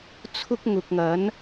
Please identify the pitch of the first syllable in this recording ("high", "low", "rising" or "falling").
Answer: high